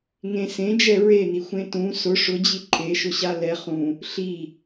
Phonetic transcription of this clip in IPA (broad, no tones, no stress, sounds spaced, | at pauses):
ŋ ẽ s ẽ d͡ʒ ɛ ɹ e n i xʷ ẽ t ũ s ʊ ʂ ʊ d͡ʑ i ǃʰ e ʃ ʊ ɕ a l ɛ χ ũ | ɬ i